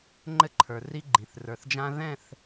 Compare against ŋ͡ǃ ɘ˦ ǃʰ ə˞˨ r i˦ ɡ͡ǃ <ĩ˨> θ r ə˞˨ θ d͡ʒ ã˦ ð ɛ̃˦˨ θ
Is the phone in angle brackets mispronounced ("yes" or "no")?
no